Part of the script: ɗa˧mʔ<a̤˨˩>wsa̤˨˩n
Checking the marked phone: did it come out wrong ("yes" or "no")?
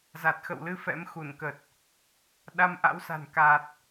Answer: yes